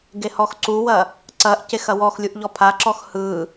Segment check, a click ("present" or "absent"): present